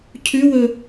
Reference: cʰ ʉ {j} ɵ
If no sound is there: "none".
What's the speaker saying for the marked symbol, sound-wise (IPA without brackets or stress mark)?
w